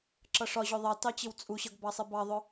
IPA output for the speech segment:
ǁ ʌ ʂ ɒ ʑ ʊ ðˤ ɑ t ɑ t͡ɕ ɪ w t͡sʼ u ɕ ʌ ɡ b ɑ sˤ ɪ b ɑ ðˤ ʊ

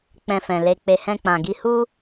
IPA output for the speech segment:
k͡p ɛ̃˧ f ɛ̃˨ l e˧ k͡p e˧ h ɛ̃˧ k͡p ã˨ ɡ i˧ h u˦

